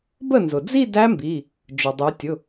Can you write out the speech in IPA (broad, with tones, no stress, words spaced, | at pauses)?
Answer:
bə˥˩nzʊ˩d͡zi˥˧ dæ˦˥mbi˩˧˩ | d͡ʒʊ˩dˤu˩˧tʲʊ˩˧˩